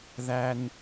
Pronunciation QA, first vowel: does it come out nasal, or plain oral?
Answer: oral